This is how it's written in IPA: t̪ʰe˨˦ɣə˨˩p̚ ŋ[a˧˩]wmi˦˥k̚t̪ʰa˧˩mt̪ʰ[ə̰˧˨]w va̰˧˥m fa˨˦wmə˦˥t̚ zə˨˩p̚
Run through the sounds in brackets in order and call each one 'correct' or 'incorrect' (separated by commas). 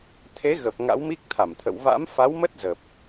incorrect, correct